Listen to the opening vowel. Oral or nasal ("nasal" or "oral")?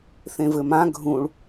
nasal